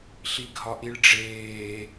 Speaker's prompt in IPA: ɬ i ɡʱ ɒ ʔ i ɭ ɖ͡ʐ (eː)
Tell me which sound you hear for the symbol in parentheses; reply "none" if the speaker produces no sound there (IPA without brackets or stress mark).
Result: eː